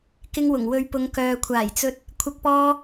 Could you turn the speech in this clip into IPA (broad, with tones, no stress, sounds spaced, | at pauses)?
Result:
k ɪ˧ ŋ w ʊ˨˩ ŋ w ɵ˨˧ ɥ p ʊ˨˧ ŋ k œː˨ kʷʰ aː˨˩ j t͡s ɵ˧ t̚ | kʷʰ ɐ˧ k̚ p ɔː˧